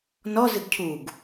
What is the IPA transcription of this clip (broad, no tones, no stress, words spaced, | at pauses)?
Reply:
nɔ zɨɡcʰuɡ